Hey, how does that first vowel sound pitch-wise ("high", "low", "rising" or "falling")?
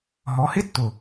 rising